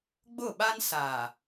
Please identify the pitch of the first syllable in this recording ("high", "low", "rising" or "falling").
falling